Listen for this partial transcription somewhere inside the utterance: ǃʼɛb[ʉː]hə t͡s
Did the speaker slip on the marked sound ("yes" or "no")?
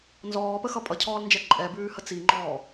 no